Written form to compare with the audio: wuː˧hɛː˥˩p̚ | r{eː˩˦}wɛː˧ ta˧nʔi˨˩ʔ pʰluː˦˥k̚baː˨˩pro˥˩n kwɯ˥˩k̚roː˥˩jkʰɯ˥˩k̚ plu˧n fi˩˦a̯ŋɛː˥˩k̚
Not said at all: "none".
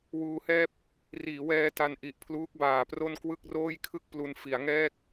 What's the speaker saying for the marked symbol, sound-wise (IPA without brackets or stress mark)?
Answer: iː˩˦